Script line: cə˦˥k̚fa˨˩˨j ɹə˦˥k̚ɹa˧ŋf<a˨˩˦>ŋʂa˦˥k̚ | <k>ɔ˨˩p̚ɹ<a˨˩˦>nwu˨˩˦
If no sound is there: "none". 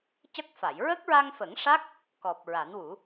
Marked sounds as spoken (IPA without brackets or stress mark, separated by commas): ə˨˩˦, k, a˨˩˦